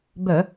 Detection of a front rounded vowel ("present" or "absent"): present